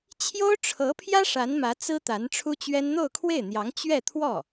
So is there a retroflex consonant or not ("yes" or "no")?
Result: yes